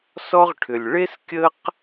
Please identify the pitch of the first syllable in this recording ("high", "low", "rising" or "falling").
high